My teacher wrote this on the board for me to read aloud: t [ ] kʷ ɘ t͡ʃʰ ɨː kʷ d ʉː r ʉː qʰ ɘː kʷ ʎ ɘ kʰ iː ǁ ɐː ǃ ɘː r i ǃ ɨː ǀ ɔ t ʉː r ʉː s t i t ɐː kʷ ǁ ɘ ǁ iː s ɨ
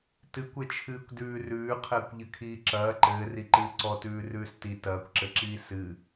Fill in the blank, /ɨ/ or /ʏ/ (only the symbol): ɨ